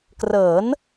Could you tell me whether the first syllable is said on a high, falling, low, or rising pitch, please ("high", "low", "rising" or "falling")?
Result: rising